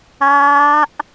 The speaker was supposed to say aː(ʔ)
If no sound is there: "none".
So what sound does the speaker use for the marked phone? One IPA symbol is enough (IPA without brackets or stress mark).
ʔ